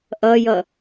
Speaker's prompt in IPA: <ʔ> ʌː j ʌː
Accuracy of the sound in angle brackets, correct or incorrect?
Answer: correct